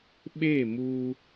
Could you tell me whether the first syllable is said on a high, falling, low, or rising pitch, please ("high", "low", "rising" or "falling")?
falling